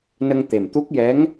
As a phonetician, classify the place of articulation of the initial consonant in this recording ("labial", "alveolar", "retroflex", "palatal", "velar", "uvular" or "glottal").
alveolar